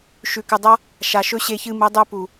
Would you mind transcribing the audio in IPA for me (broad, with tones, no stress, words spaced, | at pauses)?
ʃʉ˨kɨ˨dˤa˦ | ʃa˨ʃɵ˦ ɕe˧ çɨ˧mɨ˨˦dˤʉ˧ pu˨